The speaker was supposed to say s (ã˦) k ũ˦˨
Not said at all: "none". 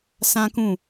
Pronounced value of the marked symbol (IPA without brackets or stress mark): ã˦